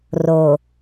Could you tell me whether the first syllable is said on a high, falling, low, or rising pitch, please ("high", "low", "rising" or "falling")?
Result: low